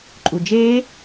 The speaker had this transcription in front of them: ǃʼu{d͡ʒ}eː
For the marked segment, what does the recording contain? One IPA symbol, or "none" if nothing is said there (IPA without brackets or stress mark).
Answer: d͡ʒ